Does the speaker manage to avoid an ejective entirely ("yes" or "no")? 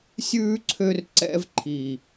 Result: yes